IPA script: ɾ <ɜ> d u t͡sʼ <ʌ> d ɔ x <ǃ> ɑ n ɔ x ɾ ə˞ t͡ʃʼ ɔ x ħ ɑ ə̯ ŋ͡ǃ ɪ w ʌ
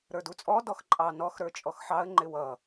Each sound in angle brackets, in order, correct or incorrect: incorrect: ə˞, incorrect: ɔ, incorrect: ǃʼ

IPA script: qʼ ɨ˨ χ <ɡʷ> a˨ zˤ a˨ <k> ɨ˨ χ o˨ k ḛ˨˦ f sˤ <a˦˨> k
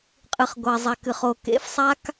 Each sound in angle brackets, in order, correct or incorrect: correct, correct, incorrect: a˦

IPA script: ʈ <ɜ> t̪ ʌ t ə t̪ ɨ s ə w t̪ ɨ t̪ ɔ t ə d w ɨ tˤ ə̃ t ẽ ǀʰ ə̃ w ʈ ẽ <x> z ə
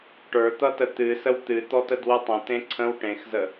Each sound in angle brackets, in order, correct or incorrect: incorrect: ə˞, correct

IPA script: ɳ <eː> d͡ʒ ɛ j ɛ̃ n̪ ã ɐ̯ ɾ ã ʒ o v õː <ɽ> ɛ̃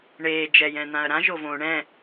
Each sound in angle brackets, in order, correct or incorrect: correct, incorrect: ɳ

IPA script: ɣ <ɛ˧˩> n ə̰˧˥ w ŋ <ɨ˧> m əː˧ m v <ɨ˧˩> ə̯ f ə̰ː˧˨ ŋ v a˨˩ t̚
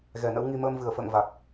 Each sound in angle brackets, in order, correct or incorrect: correct, incorrect: i˧, correct

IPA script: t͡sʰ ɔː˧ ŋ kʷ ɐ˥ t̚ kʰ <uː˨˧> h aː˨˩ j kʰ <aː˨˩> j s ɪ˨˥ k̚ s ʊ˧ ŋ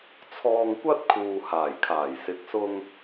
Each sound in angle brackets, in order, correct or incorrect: incorrect: uː˨, correct

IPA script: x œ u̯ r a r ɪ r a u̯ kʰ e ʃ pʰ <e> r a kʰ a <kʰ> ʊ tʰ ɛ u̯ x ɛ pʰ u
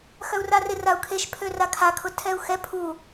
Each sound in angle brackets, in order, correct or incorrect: incorrect: ø, correct

